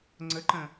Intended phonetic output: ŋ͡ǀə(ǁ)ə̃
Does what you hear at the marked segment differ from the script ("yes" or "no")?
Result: yes